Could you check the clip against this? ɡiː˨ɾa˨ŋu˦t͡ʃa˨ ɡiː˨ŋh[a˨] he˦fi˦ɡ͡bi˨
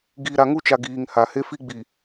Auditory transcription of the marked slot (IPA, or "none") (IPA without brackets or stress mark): a˨